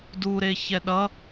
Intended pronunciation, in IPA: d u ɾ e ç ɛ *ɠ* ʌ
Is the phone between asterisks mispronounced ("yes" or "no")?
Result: yes